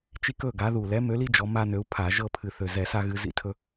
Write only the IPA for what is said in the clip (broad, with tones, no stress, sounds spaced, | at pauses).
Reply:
t͡ʃ i˥˨ k ɵ˥˨ ɡ a˨˦ ð u˨˩ l ɛ˨˦ m ø˨˦ l i˦ d͡ʒ ɔ˨˦ m a˦ n ø˨˦ u̯ pʰ a˧˩˧ ʒ ɤ˥˨ pʰ ɨ˨˩ θ ø˨˩ z ɛ˧˩˧ s a˦ ɣ ɨ˨˦ z ḭ˦ tʰ ɵ˦